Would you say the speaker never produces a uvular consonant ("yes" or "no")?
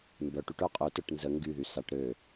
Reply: no